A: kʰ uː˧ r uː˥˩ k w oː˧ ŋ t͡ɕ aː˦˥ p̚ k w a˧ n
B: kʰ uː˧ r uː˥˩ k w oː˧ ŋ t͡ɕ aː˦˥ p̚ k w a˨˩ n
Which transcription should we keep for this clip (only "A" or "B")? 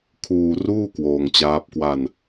A